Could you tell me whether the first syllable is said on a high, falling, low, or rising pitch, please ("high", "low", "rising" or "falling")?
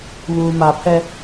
low